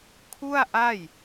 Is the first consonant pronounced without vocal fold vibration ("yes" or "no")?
yes